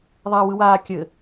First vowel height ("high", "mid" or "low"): low